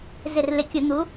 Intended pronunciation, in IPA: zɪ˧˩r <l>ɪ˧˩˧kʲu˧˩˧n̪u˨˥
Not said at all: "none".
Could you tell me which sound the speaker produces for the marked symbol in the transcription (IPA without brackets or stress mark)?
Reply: l